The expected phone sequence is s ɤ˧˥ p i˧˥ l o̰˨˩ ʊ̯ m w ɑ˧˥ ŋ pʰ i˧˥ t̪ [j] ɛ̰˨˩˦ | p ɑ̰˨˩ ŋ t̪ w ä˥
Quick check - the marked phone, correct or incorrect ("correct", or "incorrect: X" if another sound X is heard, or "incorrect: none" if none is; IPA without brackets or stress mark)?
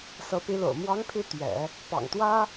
incorrect: ɥ